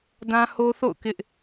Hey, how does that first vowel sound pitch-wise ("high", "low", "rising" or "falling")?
high